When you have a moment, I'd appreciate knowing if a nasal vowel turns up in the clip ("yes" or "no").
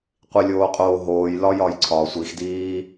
no